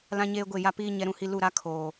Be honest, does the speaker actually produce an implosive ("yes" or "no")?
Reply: no